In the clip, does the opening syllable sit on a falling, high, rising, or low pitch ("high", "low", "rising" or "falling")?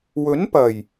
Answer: rising